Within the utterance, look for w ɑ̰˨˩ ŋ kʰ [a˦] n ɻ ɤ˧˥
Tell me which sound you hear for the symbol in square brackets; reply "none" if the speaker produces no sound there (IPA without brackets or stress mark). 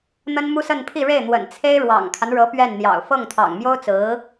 a˦